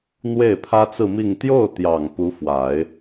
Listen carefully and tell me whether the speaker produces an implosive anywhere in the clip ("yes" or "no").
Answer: no